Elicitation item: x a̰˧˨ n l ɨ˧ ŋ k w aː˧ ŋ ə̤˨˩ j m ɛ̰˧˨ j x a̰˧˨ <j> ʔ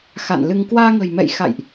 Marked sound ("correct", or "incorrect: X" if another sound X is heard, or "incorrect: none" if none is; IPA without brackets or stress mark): correct